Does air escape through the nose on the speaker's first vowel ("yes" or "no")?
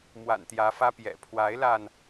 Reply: no